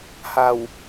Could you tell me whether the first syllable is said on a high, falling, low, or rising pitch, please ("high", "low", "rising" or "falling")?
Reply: low